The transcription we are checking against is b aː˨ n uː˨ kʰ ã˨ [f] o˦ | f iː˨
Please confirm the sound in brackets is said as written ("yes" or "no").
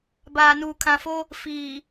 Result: yes